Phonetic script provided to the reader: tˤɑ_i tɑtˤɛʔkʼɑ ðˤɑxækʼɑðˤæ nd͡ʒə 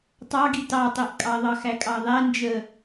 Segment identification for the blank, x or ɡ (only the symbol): ɡ